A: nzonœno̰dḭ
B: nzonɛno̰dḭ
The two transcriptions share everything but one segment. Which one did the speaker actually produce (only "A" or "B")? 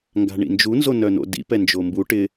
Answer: A